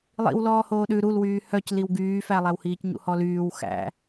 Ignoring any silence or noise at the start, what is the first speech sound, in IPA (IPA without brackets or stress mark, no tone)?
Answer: lˠ